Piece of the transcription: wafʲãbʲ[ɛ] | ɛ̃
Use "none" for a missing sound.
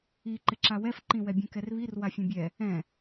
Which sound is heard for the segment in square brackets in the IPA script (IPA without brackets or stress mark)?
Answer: ɛ